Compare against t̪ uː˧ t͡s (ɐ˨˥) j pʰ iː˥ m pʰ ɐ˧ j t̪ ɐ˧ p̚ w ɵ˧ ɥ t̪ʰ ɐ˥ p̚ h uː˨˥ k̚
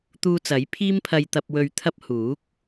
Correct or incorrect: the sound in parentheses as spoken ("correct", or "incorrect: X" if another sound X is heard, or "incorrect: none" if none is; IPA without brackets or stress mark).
correct